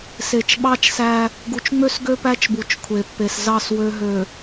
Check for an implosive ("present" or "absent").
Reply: present